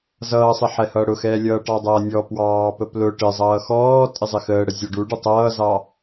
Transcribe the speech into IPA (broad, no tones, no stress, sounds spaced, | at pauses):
z ʌː sˤ ɪ ħ ɛ h ʌː ɽ ʊ x ɛː lʲ ʌː ʈ ɑ dˤ ʌː nʲ ɔ p w ɑː p ə p l ʊ ʈ ɪ zˤ ʌː x ɔː tʼ ɪ zˤ ɪ x əː ɽ ə zʲ ɔ ɖ u ɖ ə tˤ ʌː z ɑ